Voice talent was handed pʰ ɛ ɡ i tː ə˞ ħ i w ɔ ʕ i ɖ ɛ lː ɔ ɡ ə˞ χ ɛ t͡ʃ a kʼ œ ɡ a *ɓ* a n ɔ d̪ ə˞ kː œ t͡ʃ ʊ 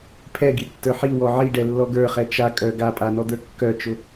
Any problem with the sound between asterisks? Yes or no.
yes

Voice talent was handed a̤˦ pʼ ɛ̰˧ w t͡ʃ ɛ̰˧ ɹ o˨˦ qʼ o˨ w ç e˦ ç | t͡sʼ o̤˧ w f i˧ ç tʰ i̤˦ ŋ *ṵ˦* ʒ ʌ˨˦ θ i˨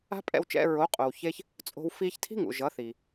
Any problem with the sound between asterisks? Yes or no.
yes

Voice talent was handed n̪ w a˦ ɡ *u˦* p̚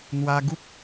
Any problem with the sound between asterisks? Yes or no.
no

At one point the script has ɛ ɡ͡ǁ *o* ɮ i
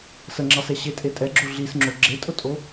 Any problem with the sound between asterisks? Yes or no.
no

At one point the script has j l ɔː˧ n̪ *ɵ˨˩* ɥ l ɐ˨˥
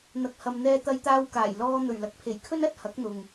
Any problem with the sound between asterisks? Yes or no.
no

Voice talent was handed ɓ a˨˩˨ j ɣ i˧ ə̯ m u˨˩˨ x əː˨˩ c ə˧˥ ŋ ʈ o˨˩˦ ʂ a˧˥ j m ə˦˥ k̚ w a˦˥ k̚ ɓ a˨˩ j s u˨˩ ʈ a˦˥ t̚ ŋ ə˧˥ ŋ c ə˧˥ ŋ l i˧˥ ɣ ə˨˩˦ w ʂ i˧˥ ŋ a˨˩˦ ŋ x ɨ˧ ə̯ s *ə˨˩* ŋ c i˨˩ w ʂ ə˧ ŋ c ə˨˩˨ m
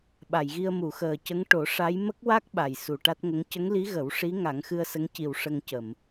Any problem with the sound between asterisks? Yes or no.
yes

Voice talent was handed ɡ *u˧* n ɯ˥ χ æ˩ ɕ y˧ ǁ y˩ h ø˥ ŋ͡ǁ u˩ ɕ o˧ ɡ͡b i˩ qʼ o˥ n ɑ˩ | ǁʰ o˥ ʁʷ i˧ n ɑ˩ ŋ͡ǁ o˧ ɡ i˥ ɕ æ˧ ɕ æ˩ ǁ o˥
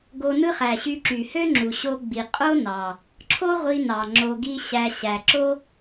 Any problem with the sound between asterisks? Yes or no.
yes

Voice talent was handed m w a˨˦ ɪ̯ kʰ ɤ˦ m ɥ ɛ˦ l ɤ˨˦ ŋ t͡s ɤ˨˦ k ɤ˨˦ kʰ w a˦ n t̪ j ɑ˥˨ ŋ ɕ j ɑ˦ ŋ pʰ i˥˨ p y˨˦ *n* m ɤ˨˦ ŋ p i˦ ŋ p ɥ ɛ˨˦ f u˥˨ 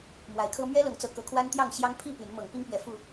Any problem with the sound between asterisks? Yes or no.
no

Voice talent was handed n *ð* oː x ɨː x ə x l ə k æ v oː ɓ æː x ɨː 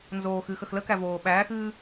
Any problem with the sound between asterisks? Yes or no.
yes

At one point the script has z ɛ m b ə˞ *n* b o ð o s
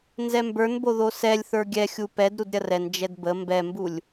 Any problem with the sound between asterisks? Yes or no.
no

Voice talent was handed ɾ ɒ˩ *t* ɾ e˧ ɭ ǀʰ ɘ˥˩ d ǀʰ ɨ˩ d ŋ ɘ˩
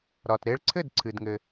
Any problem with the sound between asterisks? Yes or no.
no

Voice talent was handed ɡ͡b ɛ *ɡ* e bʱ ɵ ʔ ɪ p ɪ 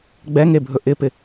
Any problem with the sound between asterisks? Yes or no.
yes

